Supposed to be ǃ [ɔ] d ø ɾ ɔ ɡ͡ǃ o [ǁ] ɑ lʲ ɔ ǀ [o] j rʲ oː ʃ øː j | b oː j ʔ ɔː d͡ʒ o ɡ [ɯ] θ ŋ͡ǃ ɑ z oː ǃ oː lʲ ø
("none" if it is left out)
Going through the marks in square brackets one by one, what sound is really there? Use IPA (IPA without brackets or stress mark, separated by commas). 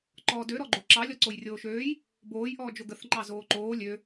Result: ɔː, ǁ, o, ə